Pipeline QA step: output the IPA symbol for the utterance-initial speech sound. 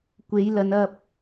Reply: kʷ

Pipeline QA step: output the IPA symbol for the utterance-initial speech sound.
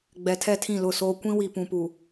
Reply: ɡ͡b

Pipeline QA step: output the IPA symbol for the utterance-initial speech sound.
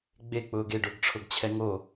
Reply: ɡ͡b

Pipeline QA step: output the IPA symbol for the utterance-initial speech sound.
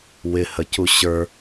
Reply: w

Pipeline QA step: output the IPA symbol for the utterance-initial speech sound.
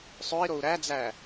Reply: sˤ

